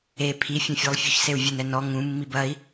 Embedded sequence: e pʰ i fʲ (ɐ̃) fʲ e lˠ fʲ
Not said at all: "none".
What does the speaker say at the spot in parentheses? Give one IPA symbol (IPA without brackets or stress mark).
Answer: ɐ̃